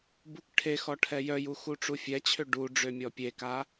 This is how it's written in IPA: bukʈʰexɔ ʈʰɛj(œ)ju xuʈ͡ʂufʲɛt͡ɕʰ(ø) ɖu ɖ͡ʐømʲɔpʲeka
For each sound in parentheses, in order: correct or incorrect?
correct, correct

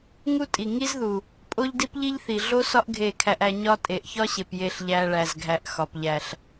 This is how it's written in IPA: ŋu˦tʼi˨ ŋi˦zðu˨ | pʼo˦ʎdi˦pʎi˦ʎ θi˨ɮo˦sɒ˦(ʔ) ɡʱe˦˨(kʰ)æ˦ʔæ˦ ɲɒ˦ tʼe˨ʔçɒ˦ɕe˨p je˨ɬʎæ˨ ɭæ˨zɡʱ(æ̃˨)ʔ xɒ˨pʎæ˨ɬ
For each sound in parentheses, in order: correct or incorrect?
correct, correct, incorrect

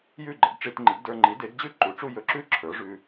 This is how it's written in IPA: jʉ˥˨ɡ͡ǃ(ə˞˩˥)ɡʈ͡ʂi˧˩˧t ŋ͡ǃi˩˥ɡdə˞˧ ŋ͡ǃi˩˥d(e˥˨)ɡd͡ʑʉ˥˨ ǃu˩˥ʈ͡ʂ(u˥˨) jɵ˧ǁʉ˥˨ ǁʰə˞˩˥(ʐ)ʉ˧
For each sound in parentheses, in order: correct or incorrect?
incorrect, incorrect, correct, correct

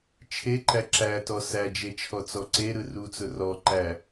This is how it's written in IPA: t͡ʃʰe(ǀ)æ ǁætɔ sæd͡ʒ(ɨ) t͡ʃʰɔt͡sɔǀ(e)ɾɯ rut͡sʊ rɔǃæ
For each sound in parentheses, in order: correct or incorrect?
incorrect, incorrect, correct

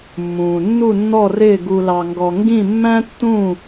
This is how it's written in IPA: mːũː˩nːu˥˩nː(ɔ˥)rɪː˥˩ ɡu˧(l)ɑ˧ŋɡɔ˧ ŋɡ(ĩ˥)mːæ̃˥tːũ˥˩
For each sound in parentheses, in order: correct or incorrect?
incorrect, correct, incorrect

